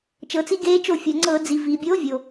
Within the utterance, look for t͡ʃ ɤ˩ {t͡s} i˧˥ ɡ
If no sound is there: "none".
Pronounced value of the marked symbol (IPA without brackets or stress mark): t͡s